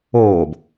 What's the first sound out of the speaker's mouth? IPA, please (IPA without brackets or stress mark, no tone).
oː